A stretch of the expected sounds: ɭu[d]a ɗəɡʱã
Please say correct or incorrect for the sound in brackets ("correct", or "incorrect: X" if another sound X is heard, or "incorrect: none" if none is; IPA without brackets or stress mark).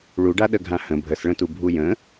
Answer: incorrect: ɖ